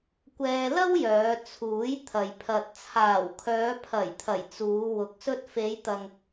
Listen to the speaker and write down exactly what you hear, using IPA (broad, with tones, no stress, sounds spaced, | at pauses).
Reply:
kʷ ɛː˧ l ɐ˥ w j œː˨˧ t͡sʰ uː˨˥ j t̪ʰ ɐ˨ j pʰ ɐ˨ t̚ t͡sʰ aː˨˩ w kʰ œː˨˧ pʰ ɐ˨˩ j t̪ʰ ɐ˨˩ j t͡s uː˨˧ w ʊ˨˥ k̚ s ɵ˧ t̚ f e˨˧ j t̪ ɐ˨ ŋ